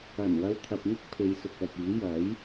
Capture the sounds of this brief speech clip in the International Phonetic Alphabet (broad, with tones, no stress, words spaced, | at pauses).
ɐ˨˩n wɐ˧wt̪ʰɐ˨p̚ŋɪ˥k̚ pʰe˨˧jsʊ˨k̚œː˨p̚iː˨˥ jɐ˨˥j